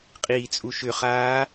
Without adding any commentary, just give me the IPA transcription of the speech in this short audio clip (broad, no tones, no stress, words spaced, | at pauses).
qʼiːt͡sʼuʃʏχaː